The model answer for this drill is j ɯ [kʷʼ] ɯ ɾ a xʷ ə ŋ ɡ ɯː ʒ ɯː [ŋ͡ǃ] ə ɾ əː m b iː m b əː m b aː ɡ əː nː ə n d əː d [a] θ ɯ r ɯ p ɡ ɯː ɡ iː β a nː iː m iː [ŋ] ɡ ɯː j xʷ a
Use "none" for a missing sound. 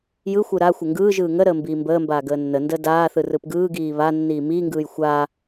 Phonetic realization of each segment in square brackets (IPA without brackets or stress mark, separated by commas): xʷ, ŋ, aː, ŋ